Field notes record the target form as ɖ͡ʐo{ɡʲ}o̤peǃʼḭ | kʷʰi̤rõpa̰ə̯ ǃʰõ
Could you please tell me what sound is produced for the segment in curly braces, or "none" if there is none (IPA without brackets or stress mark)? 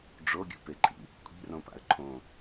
ɡʲ